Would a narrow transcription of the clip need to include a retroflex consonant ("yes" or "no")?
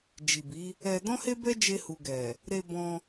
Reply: no